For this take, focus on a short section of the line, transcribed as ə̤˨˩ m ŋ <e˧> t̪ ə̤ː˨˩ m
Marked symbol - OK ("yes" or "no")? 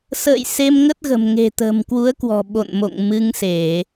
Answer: no